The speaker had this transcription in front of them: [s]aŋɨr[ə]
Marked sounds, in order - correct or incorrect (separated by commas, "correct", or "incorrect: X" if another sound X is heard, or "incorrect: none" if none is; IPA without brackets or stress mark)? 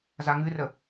incorrect: z, correct